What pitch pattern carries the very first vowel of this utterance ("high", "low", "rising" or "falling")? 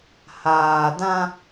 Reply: low